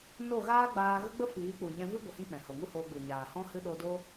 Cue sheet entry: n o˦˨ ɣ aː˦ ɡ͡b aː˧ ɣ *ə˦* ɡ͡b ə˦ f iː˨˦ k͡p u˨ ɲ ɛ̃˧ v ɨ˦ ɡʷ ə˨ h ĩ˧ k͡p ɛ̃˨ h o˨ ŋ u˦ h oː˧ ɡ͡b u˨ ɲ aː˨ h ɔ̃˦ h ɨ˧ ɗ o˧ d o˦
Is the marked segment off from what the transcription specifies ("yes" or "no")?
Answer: no